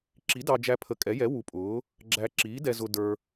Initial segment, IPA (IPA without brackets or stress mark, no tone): ǁ